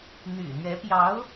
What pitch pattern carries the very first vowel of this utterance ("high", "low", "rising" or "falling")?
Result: low